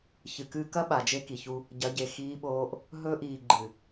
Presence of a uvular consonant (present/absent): absent